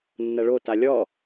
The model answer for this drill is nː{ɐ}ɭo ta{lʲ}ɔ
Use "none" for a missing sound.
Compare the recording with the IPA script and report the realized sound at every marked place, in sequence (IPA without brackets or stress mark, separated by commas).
ɐ, lʲ